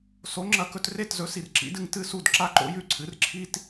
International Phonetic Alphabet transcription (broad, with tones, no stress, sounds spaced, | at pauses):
s o˩˥ ŋ͡ǁ ɐ˧ k ɵ˧ t r e˥˩ t z ɵ˩˥ s i˩ r ǁ ḭ˩˥ d ɨ˧ ŋ t ɨ˥ s u˥˩ d ǁ a˥ ǃ o̰˥ j ʉ˥˩ ǀʰ ɨ˩˥ r ǁʰ i˥ t